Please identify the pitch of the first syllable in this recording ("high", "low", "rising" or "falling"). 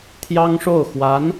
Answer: high